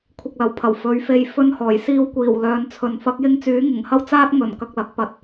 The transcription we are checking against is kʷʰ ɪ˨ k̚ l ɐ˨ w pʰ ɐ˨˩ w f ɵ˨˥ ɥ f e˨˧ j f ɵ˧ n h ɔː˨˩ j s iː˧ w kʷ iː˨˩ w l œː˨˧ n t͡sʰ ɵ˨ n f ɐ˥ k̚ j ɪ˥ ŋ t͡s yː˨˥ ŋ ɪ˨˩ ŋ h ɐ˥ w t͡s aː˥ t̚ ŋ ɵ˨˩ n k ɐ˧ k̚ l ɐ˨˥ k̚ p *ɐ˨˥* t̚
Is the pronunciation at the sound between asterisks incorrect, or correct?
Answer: correct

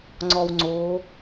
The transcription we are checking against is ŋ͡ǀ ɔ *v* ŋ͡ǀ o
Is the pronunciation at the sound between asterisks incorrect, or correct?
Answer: incorrect: w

